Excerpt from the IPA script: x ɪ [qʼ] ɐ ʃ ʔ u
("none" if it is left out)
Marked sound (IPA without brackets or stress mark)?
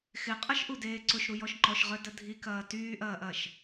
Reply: qʼ